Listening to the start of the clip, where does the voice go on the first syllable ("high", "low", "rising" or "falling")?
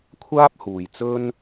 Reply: high